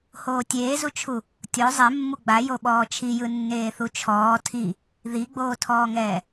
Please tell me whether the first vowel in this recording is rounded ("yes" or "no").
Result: yes